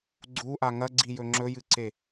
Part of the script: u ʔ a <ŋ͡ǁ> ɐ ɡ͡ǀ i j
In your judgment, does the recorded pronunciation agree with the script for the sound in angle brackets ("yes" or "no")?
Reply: no